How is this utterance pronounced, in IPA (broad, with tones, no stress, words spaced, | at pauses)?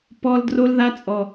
pɔ˧l dro˧lða˧t͡sʼɔ˨